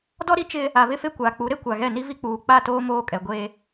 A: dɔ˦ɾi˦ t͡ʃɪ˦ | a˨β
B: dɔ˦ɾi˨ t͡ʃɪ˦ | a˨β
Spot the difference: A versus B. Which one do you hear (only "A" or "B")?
A